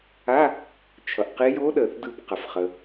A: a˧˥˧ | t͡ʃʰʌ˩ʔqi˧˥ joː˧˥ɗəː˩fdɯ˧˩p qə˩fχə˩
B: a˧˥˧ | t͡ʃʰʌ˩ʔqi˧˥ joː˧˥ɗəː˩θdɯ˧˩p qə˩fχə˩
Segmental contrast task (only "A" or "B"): B